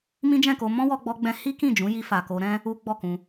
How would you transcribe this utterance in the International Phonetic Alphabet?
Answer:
m ĩ˦ d͡ʒ ɛ̃˦˨ k o˧ m ɔ̃˦ w ɔ˧ ɡ͡b ɔ˧ ɡ͡b ɛ̃˧ h i˦ k ĩ˦˨ d͡ʒ ũ˨˦ j i˧ f a˨ k o˧ ɾ ɛ̃˦ | u˦ ɡ͡b ɔ˦˨ k ũ˧

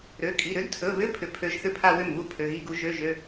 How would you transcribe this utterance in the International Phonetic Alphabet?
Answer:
ɾ ø˩˧˩ kʼ i˩˧˩ ɾ ʏ˧˥ d tʰ ɵ˩˧˩ β ʏ˧˥˧ pʰ ʏ˧˩˧ pʰ ø˧˥ ʒ θ ʏ˥˩ pʰ a˥˧ w ʏ˥˩ m β u˥˩ pʰ ø˩˧˩ ɣ i˥˧ ɡ u˧˥ ʒ ø˧˥˧ ʒ ø˧˥˧

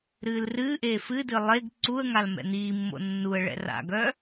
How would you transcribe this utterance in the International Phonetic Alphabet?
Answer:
ɾ ɨː l r ɨː ʔ eː f ɨ d ɨ lˠ e ɡ ǀ u ə̯ ŋ a l m ɛ̰ n̪ iː mː o̰ nː u ə̯ ɭ ɛ̰ r a̰ ɡ œ

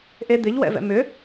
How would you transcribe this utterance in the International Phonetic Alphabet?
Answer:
ʔ e d̪ ɪ ʎ w ɛ̰ v ɛ̰ m ʏ

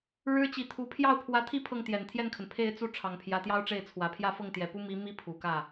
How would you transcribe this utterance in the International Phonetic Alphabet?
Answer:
ɻ ɻ̩˥ t͡ɕ i˧˥ t̪ʰ u˧˥ pʰ j ɑ˥˩ ʊ̯ pʰ w ä˧˥ t̪ʰ i˥˧ pʰ ɤ˥˩ ŋ t̪ j ɛ˨˩ n t̪ʰ j ɛ˥˩ n kʰ ə˩ n pʰ e˥˧ ɪ̯ t͡s u˥˩ ʈ͡ʂʰ ɑ˨˩ ŋ pʰ j ä˧˥ t̪ j ɑ˥ ʊ̯ ʈ͡ʂ e˥˩ ɪ̯ t͡sʰ w ä˨˩ pʰ j ä˥˧ f ɤ˥˩ ŋ t̪ j ɛ˨˩ p u˥ m i˧˥ m i˥˩ pʰ u˨˩ k ä˥˩

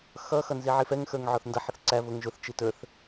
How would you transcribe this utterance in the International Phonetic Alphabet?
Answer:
x ʌ x ʌ n z i ʕ i f ɛ ŋ x ə˞ ŋ ʕ ɔ θ n d ʌ ħ ə θ ǀ æ v ʊ ŋ ʒ ʊ θ t͡ʃ i t ə˞ θ

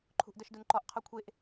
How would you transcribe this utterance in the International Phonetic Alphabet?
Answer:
ǃʰ ṳ ʔ d œ ʃ d u n ǃ ɔ ʔ qʰ ɔ kʷʰ e ʔ

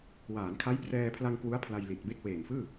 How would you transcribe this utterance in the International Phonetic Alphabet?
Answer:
w aː˩˦ n kʰ a˦˥ j p r ɛː˧ pʰ l a˧ ŋ k w u˦˥ a̯ pʰ l a˧ j l i˨˩ t̚ b e˥˩ k̚ w eː˨˩ m f ɯː˥˩

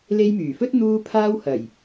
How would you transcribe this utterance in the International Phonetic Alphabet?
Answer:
l e˧ j m yː˨˩ f ɵ˥ t̚ n̪ uː˧ pʰ aː˧ w h ɐ˨˩ j

